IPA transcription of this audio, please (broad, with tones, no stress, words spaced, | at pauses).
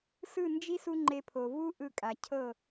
sɯ˦˨nd͡ʒi˦s u˦ŋ͡ǃe˧pʰo˨ vu˦ ʔɯ˧kʼa˨cʰɤ˦˨